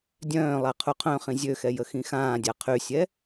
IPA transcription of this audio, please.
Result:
dʲ œ̃ː lˠ a qʰ u qʰ œ̃ χ ĩ zʲ ø x ɛ j ə x ĩ x ãː dʲ a qʰ y sʲ ɛ

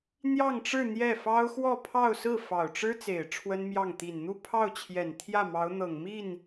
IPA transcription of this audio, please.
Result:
n̪ j ɑ˥˧ ŋ ʈ͡ʂ ɻ̩˥˧ n̪ j ɛ˥˩ f ɑ˥ ʊ̯ x w ɔ˥˧ pʰ ɑ˥˧ ʊ̯ s ɹ̩˥˩ f ɑ˨˩ ʊ̯ ʈ͡ʂ ɻ̩˥ t͡s e˨˩ ɪ̯ ʈ͡ʂʰ w ə˥ n m j ɑ˥˩ ŋ t̪ i˨˩ n n̪ u˥˧ pʰ ɑ˥˩ ʊ̯ t͡ɕʰ j ɛ˨˩ n t̪ʰ j ä˥˩ m ɑ˧˥ ʊ̯ n̪ ɤ˨˩ ŋ m i˥˩ n

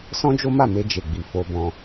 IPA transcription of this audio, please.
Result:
s ɔ̃˦ d͡ʒ o˦ m a˦˨ m e˧ d͡ʒ e˨ ɡ͡b i˨ f o˧ b ɔ̃˧

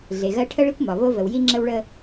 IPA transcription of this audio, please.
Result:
ɮ e˩ ɣ ɜ˧ ʈʰ ə˧ ɭ i˧ kʷ m ɒ˩ β o˧ v ə˩ w j i˧ ŋ͡ǁ ə˧ w ɭ ə˧

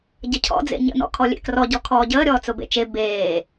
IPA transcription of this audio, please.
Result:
ɟ ə cʰ ɔ̰ d͡z ḛ ɲ ə̰ n ɔ̰ kʰ ɔ lʲ ḛ k r ɔ ɟ ɔ kʰ ɔː ɟ əː ɾʲ ɔː t͡s ʊ b ḛ t͡ʃ e b eː

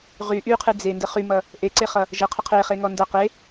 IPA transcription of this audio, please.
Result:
ʁ y ʔ y qʰ ɨ d͡z e n d ə χ y m ʌ | ʔ e ǀ e χ ʌ | ʒ ə qʰ ə qʰ e χ e ŋ ɔ n d ʌ q e

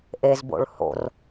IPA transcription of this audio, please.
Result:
ʔ e z b o̰ ɭ h o̰ r

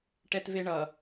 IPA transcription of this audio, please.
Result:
ʈ ɛ t v e ɳ ʌ

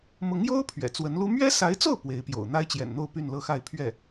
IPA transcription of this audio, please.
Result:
m ʊ˧˥ ŋ j o˥ ʊ̯ pʰ ɥ ɛ̰˨˩ t͡s w ə˧˥ n l u˥ m ɥ ɛ˥ s a˧˥ ɪ̯ t͡s o˥˩ ʊ̯ p w e˧˥ ɪ̯ p j o̰˨˩ ʊ̯ n̪ a˥ ɪ̯ t͡ɕ j ɛ̰˨˩ n n̪ o˥˧ ʊ̯ p y˥˧ n l ɤ˥˧ x a˥˧ ɪ̯ pʰ ɥ ɛ˥˩

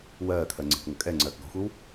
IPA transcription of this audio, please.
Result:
w ɜː kʰ ɜ ŋ͡ǀ e̤ k ŋʷ ə kʼ ɛ ŋ͡ǀ ɜː k ɡ ɔ̤ xʷ e w

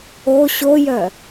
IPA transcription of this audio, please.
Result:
o ɕ o j œ

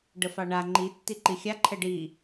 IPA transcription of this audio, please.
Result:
ɖ ə f ɑ ɳ a ŋ͡ǃ i tː i ǃ i xʲ a ǃʰ ɛ ɖ i

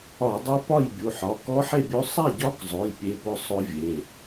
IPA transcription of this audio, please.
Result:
ɒ˧˩˧ dˤ ɵ˦˥ p ɒ˥˨ j bʲ u˩˧˩ ħ ɒ˩˧˩ k ɔ˦˥ ħ e˥˨ bʲ ɵ˦˥ sˤ a˥˨ ɟ ɒ˦˥ k zˤ ʊ˩˧˩ j pʲ e˦˥ p ʊ˦˥ sˤ ʊ˦˥ vʲ e˩˧˩

